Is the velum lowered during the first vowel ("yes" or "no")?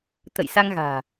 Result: no